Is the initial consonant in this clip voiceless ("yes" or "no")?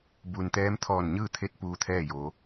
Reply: no